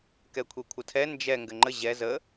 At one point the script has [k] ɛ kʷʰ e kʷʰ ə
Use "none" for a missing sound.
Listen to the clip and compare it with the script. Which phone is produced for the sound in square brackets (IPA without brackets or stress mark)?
k